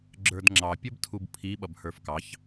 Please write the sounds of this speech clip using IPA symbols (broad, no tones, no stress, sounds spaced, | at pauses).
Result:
ɡ͡ǁ ə˞ d ŋ͡ǁ ɑ pʲ ə b tʰ u b pʰ i ɓ ʌ b h ə˞ f k ɑ ç